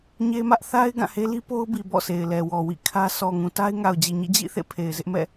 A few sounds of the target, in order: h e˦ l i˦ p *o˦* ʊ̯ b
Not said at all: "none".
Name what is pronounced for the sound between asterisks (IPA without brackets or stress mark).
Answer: o˦